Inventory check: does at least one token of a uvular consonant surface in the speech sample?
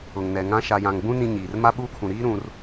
no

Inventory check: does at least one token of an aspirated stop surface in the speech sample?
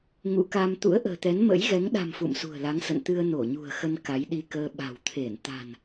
yes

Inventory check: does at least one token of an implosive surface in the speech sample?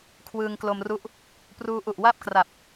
no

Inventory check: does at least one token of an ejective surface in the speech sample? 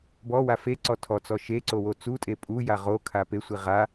yes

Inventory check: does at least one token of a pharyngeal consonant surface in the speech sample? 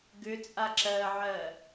yes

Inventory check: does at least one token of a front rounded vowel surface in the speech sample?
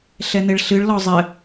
no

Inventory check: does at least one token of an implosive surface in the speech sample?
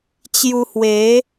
no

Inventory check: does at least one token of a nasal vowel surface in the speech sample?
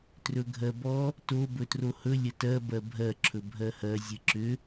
no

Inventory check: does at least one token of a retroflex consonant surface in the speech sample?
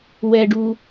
yes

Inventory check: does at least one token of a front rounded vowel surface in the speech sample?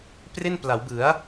no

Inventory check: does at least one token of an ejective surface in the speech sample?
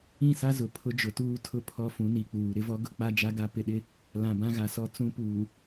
no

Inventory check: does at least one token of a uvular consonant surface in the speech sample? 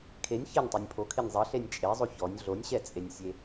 no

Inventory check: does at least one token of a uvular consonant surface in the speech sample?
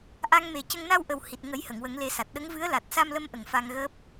no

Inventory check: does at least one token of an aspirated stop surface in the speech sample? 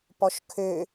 yes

